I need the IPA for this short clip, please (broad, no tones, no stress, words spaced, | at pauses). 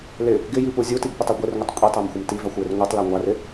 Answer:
lɪ | ɡɪjipu zʲutiɡpɪtˤu ɡʷɪrŋʷɪtˤ kʷʼitˤamxʷɪm tivaxʷjɪr ŋʷitˤla ŋʷarɪ